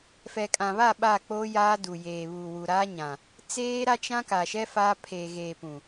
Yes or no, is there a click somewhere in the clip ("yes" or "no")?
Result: no